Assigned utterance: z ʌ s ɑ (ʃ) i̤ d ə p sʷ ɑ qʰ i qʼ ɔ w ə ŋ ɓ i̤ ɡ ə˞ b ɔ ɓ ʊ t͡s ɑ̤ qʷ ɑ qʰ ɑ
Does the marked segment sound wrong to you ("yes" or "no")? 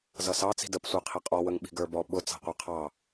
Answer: yes